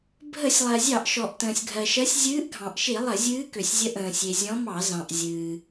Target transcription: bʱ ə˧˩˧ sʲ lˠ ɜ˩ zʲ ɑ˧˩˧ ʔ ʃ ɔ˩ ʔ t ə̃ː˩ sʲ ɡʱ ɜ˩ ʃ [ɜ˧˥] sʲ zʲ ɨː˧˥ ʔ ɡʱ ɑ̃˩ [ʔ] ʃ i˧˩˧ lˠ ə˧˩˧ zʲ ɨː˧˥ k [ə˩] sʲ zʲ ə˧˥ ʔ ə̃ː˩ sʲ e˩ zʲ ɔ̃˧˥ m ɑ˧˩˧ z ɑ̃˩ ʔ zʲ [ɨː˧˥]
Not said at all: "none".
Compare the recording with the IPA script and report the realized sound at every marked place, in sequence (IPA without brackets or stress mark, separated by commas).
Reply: ɜ˧˥, ʔ, ø˩, ɨː˩